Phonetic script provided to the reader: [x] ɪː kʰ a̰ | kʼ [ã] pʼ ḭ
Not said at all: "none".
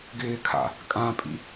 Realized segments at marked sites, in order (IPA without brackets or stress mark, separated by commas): ɡ, ã